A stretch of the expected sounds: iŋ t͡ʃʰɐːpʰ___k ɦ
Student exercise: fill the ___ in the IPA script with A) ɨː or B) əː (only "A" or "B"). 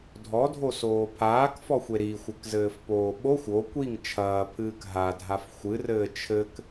A